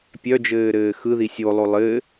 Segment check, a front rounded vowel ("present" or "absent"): present